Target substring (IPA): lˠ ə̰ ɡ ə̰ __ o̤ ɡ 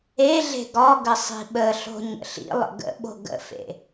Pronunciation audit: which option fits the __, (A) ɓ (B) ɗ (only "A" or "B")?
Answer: A